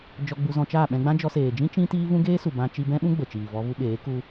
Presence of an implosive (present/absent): present